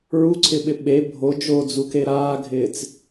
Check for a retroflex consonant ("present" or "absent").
absent